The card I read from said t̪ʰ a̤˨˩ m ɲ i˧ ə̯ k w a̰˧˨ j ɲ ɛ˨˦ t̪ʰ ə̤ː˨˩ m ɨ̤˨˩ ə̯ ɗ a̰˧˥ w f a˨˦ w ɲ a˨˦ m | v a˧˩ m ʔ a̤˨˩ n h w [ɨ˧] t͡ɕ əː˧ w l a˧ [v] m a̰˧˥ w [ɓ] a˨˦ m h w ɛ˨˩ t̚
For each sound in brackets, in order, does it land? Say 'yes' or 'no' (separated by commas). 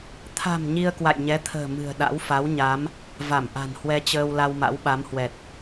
no, no, yes